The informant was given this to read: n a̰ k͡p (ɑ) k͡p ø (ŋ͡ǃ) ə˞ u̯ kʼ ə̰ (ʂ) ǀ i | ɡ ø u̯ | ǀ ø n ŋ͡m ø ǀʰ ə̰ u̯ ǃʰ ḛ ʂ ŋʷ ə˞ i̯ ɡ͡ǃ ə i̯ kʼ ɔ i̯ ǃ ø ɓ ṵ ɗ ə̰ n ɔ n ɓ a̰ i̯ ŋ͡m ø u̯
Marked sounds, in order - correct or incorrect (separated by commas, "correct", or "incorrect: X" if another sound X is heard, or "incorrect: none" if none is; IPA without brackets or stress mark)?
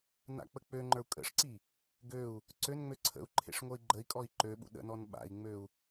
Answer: incorrect: ə, correct, correct